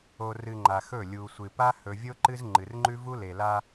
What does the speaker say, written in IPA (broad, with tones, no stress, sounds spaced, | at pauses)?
o˨ r ɨ˨ ŋ͡ǃ a˨ x ɵ˦˨ lʲ u˨ sʷ ɨ˨ p a˦ h ɵ˨ vʲ o˦ ǃ ɨ˦ z ŋ͡ǃ ɨ˨ r ŋ͡ǃ ʉ˦ v u˦ l e˨ l a˦